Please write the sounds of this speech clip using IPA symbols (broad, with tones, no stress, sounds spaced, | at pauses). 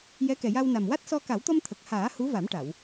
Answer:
j ɛ˧˥ k ɛ˨˩ j a˧ w n a˨˩ m w a˦˥ t̚ s ɔ˧ k a˨˩˦ w t̪ ɔ˧ m t̪ʰ ə˨˩ k̚ h aː˨˩˦ h u˧˥ v a˨˩˦ m ʈ a˨˩˨ w